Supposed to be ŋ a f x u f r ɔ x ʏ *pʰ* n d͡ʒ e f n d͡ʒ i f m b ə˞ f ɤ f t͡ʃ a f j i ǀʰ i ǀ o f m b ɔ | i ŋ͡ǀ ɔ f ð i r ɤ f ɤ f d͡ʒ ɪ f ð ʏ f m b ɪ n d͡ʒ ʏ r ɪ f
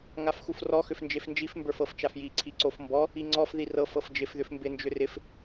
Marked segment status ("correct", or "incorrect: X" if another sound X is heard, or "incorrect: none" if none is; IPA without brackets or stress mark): incorrect: f